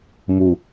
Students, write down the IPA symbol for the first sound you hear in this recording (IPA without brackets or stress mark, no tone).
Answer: m